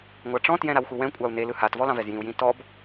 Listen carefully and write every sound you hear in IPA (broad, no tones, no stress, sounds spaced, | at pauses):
ŋʷ ɑ ʈ͡ʂ ɔ̃ t j ɛ̃ ɾ a w x u w ɛ̃ kʷʼ ɑ u̯ n e l ɯ h a t v ɔ l ɑ̃ v ɛ z j ĩ u̯ j ĩ t ɔ b